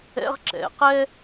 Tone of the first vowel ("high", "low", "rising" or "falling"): high